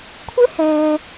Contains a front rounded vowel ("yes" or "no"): no